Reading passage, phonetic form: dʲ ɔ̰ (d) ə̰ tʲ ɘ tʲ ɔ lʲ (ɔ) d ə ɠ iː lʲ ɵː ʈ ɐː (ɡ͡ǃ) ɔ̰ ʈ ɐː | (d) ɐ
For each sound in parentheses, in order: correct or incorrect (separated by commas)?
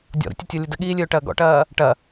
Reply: incorrect, incorrect, incorrect, incorrect